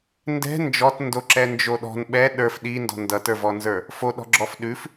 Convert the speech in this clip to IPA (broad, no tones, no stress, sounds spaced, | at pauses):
n d ɛ̤ n d͡ʒ ɔ t n d o ǁ ɛ n d͡ʒ o ɗ ɔ̤ n ɓ ɛ ɗ ə˞ f ɗ i n d ɔ̤ n d ʌ t ə˞ v ɔ n z ə˞ | f o ɗ ɔ̤ ɡ͡ǁ ɔ f ɗ ʉ f